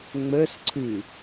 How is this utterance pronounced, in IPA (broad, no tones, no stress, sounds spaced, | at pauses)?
ŋ͡m ə s ǀʰ ɨ